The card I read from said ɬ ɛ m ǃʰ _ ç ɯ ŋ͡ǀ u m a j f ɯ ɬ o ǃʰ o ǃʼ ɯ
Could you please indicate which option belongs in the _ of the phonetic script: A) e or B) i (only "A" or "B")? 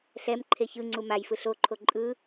A